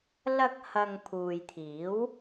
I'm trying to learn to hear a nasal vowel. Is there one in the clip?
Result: no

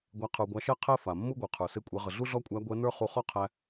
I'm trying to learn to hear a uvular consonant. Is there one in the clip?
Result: yes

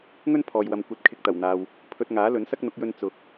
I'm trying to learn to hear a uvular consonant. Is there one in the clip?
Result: no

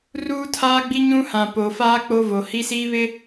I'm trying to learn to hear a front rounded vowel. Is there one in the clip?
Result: no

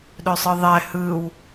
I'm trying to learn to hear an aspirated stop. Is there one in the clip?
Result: no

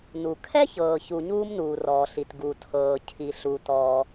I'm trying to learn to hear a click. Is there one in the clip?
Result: no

